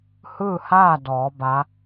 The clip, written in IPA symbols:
h ɯː˥˨ h aː˥˨ d ɔː˩˧ b a˧˥

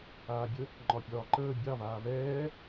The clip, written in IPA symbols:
aː bʲ ə | ŋ͡ǃ ɒ pʲ ɒː ǃ əː bʲ ɑ v aː v ɛː

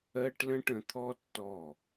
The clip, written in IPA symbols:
ɜ˦ ʈ l ə̃˦ ʈ ə̃˧ t̪ʰ ɔ˦ tː ɔ˦˨

